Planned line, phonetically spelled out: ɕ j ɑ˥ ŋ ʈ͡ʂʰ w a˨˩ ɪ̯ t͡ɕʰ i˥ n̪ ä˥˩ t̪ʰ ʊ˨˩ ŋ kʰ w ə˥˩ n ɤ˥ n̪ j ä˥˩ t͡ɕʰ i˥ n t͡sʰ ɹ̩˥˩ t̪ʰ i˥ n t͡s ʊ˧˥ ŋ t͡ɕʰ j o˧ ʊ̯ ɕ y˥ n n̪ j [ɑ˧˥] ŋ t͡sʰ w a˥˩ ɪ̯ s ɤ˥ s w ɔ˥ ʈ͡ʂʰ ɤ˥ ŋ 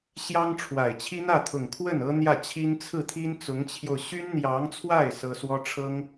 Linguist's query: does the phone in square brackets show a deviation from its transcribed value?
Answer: no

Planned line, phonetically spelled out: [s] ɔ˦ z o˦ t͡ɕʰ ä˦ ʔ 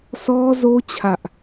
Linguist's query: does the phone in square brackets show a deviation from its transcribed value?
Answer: no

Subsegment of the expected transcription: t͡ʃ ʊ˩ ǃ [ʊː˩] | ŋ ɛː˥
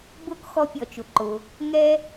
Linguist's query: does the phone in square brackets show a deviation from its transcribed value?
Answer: no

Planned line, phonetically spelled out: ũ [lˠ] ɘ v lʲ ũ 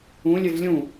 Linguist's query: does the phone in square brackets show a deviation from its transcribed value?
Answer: yes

